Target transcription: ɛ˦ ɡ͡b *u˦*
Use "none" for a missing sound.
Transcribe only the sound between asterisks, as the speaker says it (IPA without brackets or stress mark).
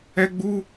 u˦